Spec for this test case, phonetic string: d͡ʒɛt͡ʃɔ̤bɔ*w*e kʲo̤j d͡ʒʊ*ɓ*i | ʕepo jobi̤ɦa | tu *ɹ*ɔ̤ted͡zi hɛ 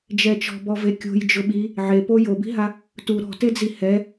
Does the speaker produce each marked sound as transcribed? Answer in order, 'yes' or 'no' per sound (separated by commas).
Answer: no, yes, no